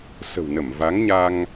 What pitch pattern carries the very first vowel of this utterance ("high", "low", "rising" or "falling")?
low